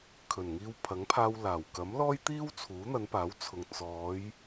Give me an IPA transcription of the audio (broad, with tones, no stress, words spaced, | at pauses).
kʰɵ˨˩nŋiː˧w pʰɐ˨˥ŋpʰaː˧w laː˨˩wkɐ˨˥mlɔː˥jt̪iː˥w t͡sʰuː˨˥n̪ɐ˨˧npaː˨˥wt͡sʰʊ˨ŋ t͡sɔː˨˧j